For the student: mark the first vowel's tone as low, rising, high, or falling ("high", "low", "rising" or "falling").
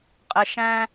low